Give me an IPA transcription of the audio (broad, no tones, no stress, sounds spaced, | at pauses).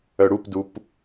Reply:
œ ɽ u p d u p